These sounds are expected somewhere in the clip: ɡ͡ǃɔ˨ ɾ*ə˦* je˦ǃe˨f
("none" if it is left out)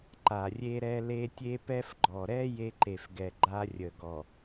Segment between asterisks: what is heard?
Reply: ɛ˦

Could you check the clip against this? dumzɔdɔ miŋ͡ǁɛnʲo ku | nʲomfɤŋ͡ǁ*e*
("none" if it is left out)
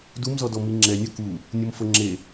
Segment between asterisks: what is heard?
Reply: e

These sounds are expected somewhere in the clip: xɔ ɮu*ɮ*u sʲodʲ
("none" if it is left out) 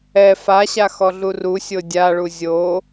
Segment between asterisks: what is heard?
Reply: r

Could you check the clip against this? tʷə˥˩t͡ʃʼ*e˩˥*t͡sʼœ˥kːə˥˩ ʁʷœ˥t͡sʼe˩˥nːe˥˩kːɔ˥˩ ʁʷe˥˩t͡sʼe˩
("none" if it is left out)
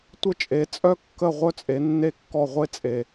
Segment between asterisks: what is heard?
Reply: e˩˥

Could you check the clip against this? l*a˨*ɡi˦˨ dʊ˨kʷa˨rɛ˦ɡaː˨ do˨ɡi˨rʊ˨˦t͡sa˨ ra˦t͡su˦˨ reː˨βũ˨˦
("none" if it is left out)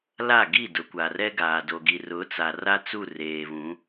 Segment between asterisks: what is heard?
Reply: a˦˨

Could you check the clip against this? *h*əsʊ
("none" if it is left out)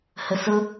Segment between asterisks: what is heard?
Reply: h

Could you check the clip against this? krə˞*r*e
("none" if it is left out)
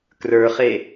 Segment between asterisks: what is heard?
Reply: χ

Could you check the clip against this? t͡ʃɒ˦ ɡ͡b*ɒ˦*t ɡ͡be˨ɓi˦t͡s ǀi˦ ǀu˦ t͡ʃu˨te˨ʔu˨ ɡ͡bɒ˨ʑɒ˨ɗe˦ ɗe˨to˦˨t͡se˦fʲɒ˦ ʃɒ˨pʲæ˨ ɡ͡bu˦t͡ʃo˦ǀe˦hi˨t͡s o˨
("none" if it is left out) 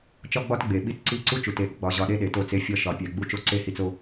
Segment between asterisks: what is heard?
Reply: ɒ˦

